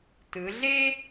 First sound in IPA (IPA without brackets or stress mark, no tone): t